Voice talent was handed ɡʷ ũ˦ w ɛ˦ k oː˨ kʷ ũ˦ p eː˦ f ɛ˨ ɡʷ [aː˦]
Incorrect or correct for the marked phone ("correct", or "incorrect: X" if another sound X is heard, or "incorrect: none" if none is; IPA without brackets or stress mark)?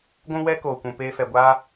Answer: correct